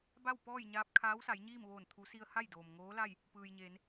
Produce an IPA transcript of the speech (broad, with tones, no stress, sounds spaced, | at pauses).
b a˥˨ w p ɔː˥˨ j ɲ aː˧˥ p̚ kʰ aː˧˥ w s a˩˧ j ɲ iː˥˨ m ʋ oː˧˩ n t̪ʰ u˩˧ s i˧ ə̯ h a˥˨ j d oː˩ m ŋ oː˧˥ l a˥˨ j | p ɯː˩ j ɲ eː˩˧ n